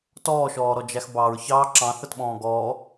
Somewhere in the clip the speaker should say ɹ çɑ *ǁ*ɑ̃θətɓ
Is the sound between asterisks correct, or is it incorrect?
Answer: correct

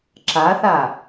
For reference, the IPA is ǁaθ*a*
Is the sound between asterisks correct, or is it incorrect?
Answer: correct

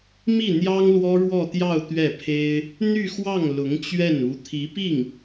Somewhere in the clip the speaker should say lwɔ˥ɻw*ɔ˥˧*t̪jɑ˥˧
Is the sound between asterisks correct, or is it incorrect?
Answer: correct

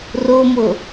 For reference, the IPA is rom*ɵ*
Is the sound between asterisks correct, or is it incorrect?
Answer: incorrect: o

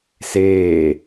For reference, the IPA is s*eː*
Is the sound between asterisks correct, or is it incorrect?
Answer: correct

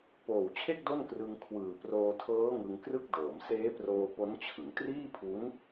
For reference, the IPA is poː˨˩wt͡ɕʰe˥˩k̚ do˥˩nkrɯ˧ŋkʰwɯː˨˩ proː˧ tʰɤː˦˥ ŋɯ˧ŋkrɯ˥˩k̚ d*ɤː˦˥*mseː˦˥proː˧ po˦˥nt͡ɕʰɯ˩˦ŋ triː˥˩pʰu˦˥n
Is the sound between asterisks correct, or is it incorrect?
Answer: incorrect: ɤː˩˦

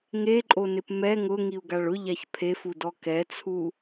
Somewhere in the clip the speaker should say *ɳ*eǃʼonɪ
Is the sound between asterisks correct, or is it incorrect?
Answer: incorrect: ŋ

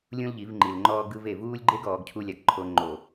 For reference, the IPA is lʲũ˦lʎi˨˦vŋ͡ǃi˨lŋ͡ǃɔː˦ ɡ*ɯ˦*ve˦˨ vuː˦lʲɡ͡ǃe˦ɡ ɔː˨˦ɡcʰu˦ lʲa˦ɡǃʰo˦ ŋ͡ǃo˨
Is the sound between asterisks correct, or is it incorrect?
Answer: correct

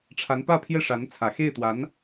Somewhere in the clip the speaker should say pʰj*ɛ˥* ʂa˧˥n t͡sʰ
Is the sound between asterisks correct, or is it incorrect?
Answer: incorrect: ɛ˥˩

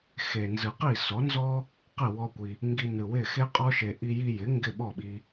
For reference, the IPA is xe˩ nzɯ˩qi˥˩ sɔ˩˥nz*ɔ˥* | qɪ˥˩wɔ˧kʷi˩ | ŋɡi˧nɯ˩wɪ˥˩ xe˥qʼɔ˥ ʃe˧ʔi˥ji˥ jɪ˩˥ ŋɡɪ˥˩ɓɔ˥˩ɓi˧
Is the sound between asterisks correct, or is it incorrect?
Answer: correct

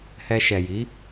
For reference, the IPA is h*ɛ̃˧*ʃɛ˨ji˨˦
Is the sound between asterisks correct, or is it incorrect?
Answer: incorrect: ɛ˧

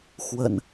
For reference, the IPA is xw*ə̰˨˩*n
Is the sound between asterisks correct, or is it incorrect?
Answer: correct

